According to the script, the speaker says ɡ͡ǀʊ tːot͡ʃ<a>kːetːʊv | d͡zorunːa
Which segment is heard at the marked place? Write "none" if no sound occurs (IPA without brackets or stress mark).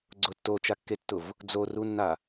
a